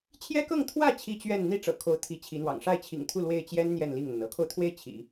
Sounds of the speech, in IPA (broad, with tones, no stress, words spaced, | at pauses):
t͡ɕʰjɛ˥kɤ˥˧ŋ t̪ʰwä˥˩ t͡ɕʰi˥ t͡ɕɥɛ˥˧n n̪i˥˩ ʈ͡ʂɤ̰˨˩kʰo˧˥ʊ̯ t̪ʰi˧˥t͡ɕʰi˧˥n̪wɑ̰˨˩ŋ ʂa˥˩ɪ̯t͡ɕʰḭ˨˩ŋt̪ʰu˥˧ lwe˥˩ɪ̯t͡ɕjɛ˥n n̪jɛ˥˧nli˥˩ŋn̪ə˩n ɤ˧˥kʰo˧ʊ̯t̪ʰwe˥˩ɪ̯ t͡ɕʰḭ˨˩˦